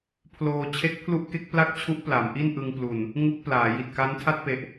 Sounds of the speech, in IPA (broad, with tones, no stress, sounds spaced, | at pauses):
pʰ l oː˧ t͡ɕʰ e˦˥ k̚ pʰ l u˦˥ ʔ k e˦˥ k̚ p l a˥˩ k̚ t͡ɕʰ u˦˥ ʔ p l a˩˦ m ʔ i˥˩ n ʔ ɯ˧ ŋ p l u˨˩ n | ŋ u˦˥ k̚ p l aː˩˦ j i˨˩ t̚ k a˦˥ n tʰ a˥˩ t̚ p e˨˩ ʔ